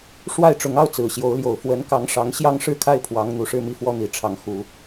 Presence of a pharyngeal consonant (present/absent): absent